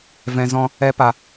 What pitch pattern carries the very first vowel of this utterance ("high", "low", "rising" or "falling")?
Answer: low